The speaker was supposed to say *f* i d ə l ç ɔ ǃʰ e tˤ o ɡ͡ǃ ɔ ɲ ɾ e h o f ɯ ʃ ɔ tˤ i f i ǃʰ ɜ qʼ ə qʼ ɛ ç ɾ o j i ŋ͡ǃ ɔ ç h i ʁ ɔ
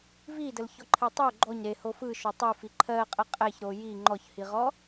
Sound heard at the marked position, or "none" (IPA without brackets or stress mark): v